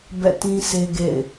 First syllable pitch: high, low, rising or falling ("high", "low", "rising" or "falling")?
falling